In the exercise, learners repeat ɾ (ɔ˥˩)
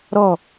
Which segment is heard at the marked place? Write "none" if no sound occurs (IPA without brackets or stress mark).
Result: ɔ˥˩